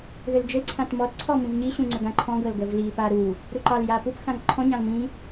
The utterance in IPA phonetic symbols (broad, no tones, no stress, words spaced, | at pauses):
ðʏld͡ʒʏlǀʰãt mɔtǀʰɔ mĩvɲiɕũ ŋ͡ǀəɡãǃʰɔ̃ɡɤl ɡəvlipa ɾu | ɾuǃɑlja pupxãŋ ǃʰɔ̃ɲɑ̃l mĩ